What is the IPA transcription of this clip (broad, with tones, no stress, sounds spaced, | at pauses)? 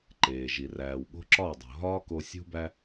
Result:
ǃ eː˨ ʒ i˨ r æː˨ w ɠ o̤˦ ǁ ɒː˦˨ dˤ o̤˨ ɦ ɒː˦ k o˧ sʲ ṳ˦ b æ˦